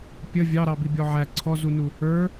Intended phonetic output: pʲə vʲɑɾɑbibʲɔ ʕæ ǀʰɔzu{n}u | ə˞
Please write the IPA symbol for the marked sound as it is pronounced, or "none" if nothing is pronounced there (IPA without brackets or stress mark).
n